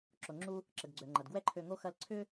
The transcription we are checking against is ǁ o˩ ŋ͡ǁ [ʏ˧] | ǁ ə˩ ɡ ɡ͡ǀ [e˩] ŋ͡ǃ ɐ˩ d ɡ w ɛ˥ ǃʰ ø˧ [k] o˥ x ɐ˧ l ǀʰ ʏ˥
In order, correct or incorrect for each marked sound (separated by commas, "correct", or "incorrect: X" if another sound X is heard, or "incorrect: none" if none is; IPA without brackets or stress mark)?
incorrect: u˧, incorrect: ø˩, incorrect: ŋ